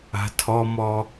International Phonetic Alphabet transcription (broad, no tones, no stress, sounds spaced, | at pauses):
a̤ tʰ ɔ m ɔ